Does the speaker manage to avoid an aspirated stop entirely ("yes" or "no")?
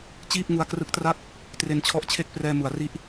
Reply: no